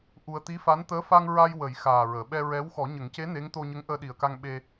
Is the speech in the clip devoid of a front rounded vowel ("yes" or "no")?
yes